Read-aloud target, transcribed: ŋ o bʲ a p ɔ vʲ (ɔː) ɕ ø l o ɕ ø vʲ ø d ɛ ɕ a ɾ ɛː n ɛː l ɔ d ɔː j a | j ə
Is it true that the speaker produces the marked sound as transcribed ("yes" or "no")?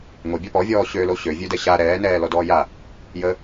yes